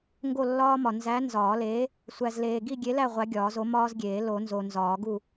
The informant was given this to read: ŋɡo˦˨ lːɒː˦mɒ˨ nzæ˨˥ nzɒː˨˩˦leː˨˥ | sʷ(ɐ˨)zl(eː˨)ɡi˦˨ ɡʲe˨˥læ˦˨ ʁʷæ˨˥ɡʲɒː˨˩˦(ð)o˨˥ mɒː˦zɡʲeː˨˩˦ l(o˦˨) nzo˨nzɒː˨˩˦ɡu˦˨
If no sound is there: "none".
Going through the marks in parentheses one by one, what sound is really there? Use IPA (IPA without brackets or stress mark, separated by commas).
æ˨, eː˨, z, o˨˩˦